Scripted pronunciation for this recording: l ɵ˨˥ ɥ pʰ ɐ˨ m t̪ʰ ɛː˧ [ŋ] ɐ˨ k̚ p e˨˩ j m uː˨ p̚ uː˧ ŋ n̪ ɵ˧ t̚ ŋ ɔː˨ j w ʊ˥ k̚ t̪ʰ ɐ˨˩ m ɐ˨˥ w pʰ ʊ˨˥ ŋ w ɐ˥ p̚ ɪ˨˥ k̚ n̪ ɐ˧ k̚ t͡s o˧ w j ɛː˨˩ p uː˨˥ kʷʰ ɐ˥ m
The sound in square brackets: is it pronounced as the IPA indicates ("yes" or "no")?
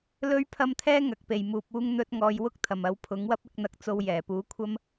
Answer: yes